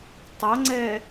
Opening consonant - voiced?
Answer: no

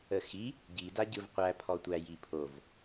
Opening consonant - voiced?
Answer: no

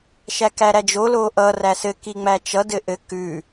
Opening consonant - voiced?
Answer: no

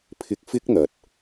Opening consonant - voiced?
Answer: no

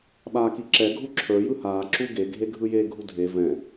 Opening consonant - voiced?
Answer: yes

